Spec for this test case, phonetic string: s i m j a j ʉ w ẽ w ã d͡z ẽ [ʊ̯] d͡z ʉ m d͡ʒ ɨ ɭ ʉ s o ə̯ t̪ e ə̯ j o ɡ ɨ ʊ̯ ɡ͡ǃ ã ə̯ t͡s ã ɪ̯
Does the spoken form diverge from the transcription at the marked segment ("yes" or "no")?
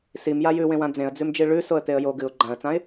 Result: yes